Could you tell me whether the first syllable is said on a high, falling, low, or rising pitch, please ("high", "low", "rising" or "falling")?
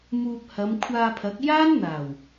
low